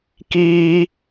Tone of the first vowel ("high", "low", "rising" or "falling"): high